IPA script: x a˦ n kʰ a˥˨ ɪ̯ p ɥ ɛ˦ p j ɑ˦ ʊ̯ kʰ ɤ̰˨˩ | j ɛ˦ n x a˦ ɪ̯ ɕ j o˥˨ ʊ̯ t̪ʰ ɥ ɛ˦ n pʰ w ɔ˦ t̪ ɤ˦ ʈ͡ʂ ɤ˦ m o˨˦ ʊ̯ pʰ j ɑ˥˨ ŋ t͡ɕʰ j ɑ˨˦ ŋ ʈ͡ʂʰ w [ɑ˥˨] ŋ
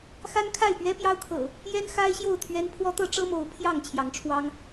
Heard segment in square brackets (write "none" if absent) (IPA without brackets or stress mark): ɑ˦